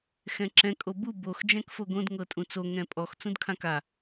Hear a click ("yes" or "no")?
yes